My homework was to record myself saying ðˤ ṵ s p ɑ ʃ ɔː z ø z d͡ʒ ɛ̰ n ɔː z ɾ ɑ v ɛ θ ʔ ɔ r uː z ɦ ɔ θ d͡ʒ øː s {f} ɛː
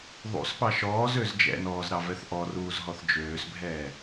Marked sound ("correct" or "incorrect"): incorrect